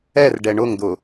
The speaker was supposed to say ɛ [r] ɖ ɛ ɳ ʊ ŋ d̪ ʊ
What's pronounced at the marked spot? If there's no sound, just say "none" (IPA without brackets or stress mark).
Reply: r